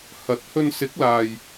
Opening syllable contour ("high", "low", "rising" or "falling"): rising